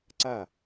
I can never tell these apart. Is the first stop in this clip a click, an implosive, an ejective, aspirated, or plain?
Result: click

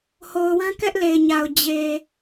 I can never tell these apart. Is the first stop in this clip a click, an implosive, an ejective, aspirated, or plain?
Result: plain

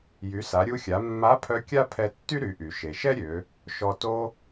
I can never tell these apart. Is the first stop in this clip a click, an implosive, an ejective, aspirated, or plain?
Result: aspirated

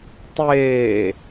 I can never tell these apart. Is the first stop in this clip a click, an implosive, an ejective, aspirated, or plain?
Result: plain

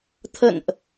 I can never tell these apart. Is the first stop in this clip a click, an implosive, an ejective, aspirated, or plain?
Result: aspirated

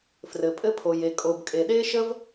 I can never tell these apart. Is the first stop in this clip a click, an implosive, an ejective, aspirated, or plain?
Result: ejective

